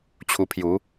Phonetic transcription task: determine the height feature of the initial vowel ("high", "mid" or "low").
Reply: high